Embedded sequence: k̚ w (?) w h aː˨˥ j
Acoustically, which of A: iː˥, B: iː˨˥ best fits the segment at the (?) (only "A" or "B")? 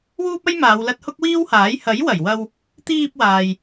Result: A